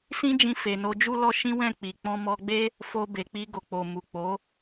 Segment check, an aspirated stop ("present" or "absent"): absent